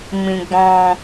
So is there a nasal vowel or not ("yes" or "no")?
yes